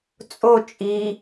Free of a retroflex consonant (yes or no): yes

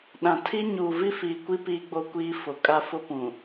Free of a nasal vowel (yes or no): no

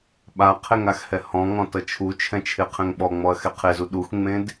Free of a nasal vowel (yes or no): no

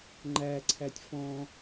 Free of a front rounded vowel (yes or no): yes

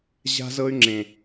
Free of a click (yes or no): no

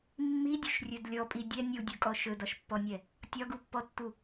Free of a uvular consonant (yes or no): yes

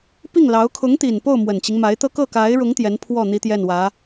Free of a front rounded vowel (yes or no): yes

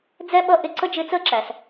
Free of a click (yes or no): no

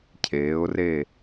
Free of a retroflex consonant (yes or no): yes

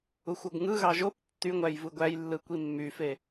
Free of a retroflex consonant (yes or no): yes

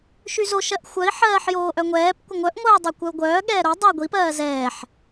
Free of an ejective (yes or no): yes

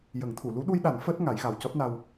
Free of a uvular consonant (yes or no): yes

